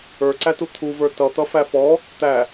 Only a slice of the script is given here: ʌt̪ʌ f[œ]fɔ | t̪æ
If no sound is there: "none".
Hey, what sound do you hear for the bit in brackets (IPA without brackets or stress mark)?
æ